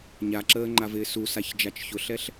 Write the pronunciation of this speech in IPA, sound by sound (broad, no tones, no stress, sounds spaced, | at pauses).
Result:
ɲ a ǁ əː ŋ͡ǃ a v ɪː s u s a ç d͡ʒ a t͡ʃ ç ʊ ɬ ɛ ɬ